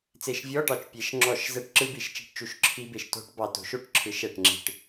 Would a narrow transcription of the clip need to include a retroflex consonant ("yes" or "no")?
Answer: yes